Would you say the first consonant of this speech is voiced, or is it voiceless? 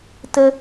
voiceless